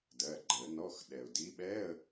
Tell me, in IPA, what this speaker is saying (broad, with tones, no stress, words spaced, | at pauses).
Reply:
dɜ˩˧˩ ɡ͡ǃə˨˩˦nɔ˧˥˧x ɗɛ˩ʊ̯di˨˦ɓɛ˧˥˧ə̯